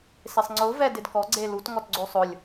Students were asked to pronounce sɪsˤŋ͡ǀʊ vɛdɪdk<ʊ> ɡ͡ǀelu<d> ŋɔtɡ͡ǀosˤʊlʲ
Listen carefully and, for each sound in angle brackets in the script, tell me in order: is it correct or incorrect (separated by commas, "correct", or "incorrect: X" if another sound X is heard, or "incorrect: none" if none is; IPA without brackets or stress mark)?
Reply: incorrect: ɔ, incorrect: t